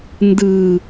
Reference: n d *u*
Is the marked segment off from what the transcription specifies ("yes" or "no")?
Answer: yes